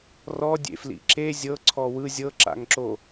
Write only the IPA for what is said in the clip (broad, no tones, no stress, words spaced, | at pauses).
rɔdʲḛflḭ ǁe zʲɤǀʰɔ wɯ zʲɤǁa̰ŋǁo